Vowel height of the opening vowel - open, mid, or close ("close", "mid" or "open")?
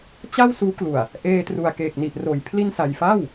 open